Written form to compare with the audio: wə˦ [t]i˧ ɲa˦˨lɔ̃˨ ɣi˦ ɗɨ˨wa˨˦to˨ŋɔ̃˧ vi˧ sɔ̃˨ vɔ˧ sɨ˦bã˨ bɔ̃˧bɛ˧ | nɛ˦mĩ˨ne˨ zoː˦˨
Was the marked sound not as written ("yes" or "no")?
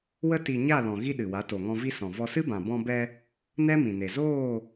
no